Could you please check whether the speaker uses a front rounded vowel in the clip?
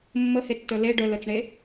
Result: yes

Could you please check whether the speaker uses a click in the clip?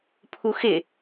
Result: no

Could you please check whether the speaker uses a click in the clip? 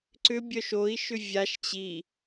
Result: yes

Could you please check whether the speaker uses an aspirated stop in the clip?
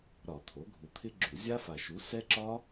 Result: yes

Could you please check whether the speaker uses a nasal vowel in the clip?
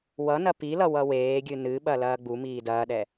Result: no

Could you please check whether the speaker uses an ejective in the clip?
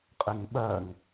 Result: yes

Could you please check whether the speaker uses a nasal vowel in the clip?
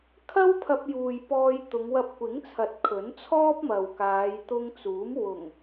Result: no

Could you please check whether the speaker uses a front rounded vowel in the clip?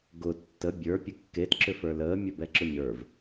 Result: yes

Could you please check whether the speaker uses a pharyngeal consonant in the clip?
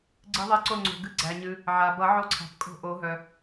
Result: yes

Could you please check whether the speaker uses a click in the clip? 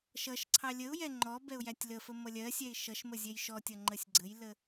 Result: yes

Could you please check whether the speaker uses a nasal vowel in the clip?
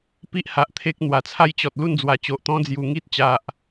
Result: yes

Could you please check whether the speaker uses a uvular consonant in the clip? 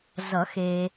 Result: no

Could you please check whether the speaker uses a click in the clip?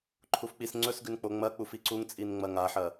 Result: yes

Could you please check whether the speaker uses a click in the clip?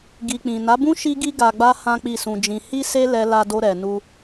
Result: no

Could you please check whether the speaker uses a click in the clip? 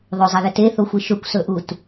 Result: no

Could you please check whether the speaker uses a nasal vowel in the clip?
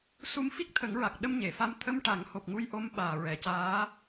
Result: no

